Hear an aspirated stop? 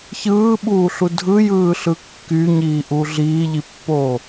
no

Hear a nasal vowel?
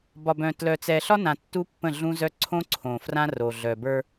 yes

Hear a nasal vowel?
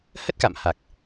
no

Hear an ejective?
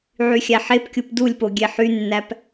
no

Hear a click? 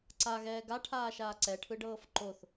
yes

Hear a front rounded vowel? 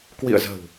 no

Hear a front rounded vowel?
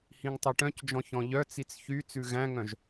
yes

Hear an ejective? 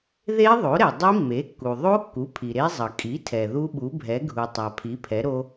yes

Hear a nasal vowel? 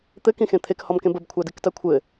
yes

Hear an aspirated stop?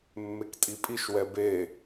no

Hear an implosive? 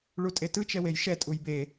no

